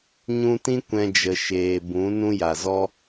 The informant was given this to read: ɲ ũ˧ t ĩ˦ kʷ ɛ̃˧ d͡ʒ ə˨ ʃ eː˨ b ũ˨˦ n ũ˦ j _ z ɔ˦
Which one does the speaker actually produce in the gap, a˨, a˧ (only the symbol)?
a˨